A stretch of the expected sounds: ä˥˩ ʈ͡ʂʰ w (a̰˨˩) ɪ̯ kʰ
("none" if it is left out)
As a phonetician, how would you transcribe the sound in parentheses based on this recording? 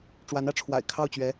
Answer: a̰˨˩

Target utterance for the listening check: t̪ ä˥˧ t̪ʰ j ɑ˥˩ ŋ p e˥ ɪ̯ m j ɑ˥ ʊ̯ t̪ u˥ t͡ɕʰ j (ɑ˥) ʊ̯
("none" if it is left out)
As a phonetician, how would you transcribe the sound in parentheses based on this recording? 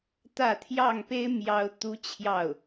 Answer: ɑ˥˩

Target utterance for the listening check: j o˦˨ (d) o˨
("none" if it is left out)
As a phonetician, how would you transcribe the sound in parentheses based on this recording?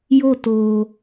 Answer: t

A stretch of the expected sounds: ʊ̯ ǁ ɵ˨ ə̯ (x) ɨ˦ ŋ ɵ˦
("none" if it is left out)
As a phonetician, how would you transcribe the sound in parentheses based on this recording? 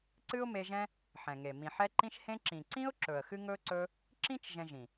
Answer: x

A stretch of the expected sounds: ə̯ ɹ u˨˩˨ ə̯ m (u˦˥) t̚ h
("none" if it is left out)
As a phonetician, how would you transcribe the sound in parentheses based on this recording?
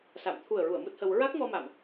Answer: u˦˥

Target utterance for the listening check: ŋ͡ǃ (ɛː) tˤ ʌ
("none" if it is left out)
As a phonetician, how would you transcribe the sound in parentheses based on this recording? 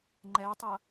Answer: ɛː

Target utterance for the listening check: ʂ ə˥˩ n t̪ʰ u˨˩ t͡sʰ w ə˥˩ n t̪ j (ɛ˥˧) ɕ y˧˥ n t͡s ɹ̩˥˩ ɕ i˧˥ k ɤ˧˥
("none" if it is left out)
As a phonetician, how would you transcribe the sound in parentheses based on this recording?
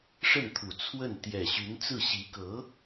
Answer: ɛ˨˩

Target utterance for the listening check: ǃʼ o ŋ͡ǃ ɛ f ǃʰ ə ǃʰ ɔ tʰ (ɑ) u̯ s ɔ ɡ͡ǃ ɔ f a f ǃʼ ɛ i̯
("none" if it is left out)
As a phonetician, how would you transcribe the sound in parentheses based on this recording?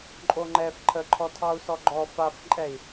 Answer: ɑ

